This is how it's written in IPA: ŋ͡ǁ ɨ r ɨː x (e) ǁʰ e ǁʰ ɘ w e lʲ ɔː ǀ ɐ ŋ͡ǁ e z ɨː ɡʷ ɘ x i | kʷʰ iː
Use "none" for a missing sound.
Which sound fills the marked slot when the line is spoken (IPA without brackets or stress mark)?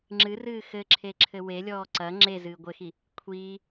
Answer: ɘ